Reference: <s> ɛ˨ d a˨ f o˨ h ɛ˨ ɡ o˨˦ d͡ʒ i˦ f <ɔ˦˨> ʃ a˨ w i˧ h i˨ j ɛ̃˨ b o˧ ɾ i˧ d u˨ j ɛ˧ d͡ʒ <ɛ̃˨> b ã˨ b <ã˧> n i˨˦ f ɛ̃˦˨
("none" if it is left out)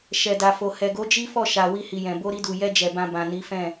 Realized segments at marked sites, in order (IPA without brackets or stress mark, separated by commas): ʃ, ɔ˦˨, ɛ˨, ã˨